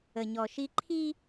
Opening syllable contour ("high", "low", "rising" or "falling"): low